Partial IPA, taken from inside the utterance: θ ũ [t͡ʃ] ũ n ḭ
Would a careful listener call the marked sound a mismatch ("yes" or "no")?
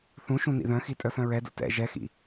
yes